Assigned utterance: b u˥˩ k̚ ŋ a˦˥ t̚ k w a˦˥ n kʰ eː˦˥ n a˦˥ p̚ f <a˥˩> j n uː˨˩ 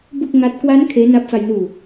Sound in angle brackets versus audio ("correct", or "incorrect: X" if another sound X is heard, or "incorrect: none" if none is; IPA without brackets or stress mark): incorrect: a˧